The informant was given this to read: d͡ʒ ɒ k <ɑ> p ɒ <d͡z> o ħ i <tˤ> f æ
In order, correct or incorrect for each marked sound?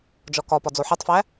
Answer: incorrect, correct, correct

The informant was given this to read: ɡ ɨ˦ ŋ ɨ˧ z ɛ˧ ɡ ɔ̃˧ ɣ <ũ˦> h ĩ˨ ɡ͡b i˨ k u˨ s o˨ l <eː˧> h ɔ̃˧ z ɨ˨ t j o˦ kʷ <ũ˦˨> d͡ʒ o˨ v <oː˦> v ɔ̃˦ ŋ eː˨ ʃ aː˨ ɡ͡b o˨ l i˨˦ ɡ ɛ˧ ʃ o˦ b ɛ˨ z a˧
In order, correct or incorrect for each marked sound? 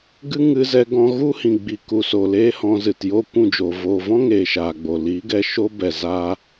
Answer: incorrect, incorrect, correct, incorrect

